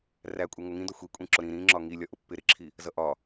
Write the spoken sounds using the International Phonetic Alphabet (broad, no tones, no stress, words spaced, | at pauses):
rækʷʼɛŋʊ ŋĩdɔ xʷikʷʼĩǁʊ ɾĩ ɾĩ ŋ͡ǁɒŋilʲɒʔʊ pːɪ ɾɪǁʰi | zʌʔɒ